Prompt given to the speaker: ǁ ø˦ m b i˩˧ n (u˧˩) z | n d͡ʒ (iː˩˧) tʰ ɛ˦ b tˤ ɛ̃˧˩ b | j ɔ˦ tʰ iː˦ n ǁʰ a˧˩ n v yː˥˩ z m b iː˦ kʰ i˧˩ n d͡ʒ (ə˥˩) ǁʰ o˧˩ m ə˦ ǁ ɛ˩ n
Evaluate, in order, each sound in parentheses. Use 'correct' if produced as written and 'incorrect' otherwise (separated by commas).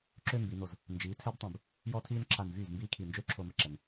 incorrect, correct, incorrect